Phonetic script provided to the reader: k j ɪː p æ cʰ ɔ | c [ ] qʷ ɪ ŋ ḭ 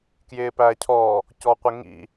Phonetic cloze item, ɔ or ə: ɔ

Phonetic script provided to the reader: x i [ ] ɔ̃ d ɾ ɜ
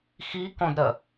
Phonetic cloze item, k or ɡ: k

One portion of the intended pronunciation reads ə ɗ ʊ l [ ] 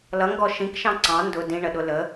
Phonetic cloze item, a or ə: ə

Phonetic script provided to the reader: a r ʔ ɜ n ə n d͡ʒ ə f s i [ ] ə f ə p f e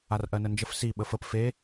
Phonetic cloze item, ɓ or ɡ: ɓ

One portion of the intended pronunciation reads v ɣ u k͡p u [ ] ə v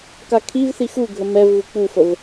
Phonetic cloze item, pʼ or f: f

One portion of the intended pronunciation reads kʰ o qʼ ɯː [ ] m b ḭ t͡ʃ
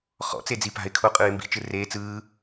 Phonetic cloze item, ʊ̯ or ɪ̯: ɪ̯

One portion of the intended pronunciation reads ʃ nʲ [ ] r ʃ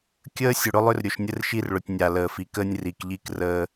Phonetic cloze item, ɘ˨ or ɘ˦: ɘ˦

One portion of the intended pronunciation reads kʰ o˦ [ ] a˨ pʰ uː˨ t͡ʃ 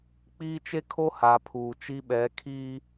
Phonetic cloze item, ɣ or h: h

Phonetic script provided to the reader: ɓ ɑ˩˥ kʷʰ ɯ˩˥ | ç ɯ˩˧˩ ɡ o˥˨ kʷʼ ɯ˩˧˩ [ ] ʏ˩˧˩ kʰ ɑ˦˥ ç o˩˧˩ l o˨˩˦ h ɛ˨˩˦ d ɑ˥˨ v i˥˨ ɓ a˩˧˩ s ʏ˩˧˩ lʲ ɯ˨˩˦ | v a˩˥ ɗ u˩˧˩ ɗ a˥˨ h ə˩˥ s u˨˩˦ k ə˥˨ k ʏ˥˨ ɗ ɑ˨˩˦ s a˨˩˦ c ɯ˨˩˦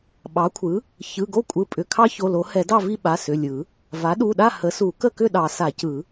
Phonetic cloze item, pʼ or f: pʼ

